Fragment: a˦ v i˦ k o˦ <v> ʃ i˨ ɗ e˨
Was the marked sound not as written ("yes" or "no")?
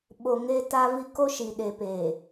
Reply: yes